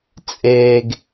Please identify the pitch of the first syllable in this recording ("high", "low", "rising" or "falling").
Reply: low